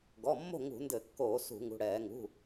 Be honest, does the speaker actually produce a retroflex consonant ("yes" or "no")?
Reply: yes